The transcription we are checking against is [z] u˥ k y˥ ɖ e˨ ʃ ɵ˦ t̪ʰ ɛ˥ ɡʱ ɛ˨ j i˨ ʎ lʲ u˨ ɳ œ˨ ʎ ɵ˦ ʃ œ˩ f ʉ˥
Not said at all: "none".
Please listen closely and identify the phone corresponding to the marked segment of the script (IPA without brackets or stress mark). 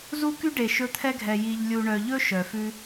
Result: z